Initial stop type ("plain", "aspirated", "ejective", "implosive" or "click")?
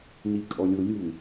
ejective